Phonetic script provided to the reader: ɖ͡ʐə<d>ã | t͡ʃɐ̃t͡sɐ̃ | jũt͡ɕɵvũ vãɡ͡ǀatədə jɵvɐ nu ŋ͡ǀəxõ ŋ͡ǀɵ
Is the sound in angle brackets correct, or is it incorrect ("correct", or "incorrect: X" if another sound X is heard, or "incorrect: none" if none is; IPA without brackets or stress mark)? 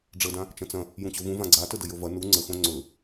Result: correct